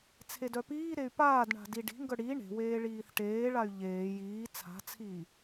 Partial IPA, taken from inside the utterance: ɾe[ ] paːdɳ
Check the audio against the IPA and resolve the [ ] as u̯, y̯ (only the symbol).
y̯